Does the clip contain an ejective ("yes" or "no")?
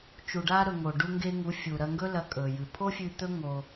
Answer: yes